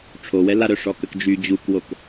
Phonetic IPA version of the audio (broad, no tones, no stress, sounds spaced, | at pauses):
ʈ͡ʂʰ o w ɛ l a ɾ œ ʂ ɔ k ə k d͡ʒ y d͡ʑ u k w o k